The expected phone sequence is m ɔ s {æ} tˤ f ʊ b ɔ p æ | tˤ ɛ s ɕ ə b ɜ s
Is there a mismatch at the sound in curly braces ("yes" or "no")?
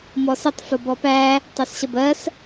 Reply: yes